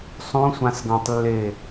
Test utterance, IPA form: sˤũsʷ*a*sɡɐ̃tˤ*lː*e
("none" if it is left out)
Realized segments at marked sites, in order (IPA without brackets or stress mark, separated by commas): ã, lː